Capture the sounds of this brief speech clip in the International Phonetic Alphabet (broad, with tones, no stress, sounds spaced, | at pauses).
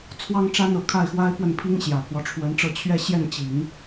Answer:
t͡sʰ w ɑ˥ ŋ ʈ͡ʂ a˥ n ɤ˨˩ kʰ a˥˩ ɪ̯ x w a˥ ɪ̯ p w ə˥˩ n pʰ i˥ ŋ ɕ j ä˨˩ pʰ w ɔ˦ ʈ͡ʂʰ w ə˧˥ n ʈ͡ʂ ɤ˥˧ t͡ɕʰ ɥ ɛ˥˧ ɕ j ɛ˥˩ n t͡ɕ i˨˩˦ ŋ